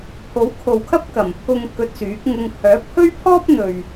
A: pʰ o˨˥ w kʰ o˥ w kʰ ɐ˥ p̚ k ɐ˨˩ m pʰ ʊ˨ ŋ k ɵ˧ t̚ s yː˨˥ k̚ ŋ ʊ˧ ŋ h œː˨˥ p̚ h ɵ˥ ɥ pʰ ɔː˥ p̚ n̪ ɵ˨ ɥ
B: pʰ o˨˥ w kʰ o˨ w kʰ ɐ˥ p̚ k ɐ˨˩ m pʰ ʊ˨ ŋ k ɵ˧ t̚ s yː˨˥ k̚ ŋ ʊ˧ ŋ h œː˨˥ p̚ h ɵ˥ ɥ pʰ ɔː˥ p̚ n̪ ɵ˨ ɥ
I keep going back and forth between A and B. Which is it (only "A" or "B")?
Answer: B